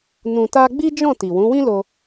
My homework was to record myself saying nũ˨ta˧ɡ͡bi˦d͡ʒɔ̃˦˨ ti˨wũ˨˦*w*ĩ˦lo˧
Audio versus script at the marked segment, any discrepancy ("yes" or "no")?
no